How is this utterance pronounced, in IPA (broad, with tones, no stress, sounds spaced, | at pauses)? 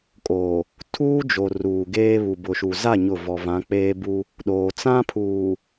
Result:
kʼ oː˨ | tʰ uː˦ d͡ʒ o˨ r uː˨ ɡ eː˦ β u˨ b ʊ˨ ʃ u˨ z a˦˨ ɲ ʊ˦˨ v ɔ˨ v ã˨˦ k͡p eː˦ b u˦ | ɗ oː˨ t͡s ã˦ pʰ uː˨